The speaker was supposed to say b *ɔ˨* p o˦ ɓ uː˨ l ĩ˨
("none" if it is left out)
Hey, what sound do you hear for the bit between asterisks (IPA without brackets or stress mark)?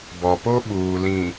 ɔ˨